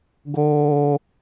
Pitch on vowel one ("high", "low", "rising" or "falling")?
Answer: high